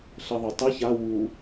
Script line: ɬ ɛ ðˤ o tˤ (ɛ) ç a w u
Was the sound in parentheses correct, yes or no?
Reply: yes